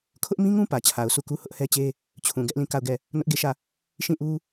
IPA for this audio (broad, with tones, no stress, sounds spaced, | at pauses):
kʰ ʊ˦ ʔ m ĩ˦ ŋ ũ˦ p ä˨ t͡ɕʰ a˨ ʊ̯ sʰ u˦˨ k u˦ h ʊ˦ ʔ h ɛ˦ t͡ɕ e˦ | t͡ɕʰ ũ˨ ɡ ɛ˦ ʔ l ĩ˦˨ k a˦˨ ʊ̯ ɡ ɛ˦˨ | n ʊ˦ ʔ ɡ e˦˨ ʃ ä˦˨ | ʃ ĩ˦˨ ʔ u˦